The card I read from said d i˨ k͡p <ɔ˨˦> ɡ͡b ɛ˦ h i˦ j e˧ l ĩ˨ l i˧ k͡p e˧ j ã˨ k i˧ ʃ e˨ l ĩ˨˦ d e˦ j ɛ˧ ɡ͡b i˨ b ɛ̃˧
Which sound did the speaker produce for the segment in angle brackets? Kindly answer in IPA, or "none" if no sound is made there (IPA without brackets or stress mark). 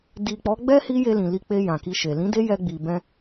ɔ˨˦